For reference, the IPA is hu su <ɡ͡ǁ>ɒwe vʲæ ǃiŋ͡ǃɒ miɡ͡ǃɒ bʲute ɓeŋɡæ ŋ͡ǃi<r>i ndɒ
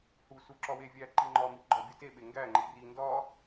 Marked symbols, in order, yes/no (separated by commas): no, yes